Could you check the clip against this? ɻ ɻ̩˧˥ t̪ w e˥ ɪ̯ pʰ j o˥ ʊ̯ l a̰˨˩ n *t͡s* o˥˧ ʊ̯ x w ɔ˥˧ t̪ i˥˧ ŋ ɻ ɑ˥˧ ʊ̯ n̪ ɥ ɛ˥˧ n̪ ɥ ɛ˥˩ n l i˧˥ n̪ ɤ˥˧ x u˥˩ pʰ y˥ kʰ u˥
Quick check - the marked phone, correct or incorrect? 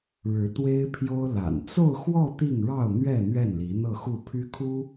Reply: correct